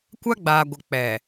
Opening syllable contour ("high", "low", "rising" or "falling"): high